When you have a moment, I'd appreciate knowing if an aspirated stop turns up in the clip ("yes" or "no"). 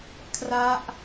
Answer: yes